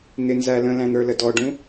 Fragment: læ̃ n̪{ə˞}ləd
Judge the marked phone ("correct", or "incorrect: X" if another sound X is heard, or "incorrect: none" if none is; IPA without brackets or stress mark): correct